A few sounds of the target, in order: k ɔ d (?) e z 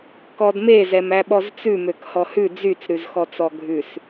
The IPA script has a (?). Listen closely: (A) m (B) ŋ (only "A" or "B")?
A